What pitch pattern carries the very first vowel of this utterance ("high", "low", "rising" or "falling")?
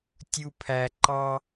low